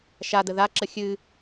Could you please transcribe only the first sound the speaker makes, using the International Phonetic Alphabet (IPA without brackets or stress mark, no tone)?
ʃ